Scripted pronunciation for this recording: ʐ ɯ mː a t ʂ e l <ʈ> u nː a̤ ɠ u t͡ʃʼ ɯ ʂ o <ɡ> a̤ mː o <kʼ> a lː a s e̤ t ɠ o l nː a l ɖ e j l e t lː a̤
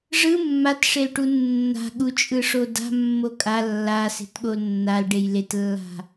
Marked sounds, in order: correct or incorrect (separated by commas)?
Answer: correct, incorrect, correct